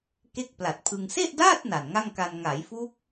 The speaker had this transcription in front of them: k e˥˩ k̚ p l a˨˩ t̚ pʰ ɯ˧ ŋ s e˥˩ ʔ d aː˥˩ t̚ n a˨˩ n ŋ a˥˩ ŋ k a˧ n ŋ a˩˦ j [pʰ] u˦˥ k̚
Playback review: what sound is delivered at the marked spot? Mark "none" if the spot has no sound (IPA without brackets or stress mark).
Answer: f